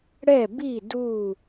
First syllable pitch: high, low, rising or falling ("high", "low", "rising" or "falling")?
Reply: falling